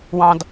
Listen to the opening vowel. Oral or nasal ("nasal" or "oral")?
nasal